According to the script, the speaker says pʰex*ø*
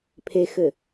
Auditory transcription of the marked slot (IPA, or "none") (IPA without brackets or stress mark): ɘ